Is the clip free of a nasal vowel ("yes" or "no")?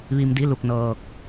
yes